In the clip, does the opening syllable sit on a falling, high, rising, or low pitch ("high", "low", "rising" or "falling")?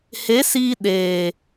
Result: rising